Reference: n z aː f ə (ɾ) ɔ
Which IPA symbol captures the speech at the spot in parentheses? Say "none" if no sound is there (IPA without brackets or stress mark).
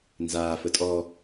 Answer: tʼ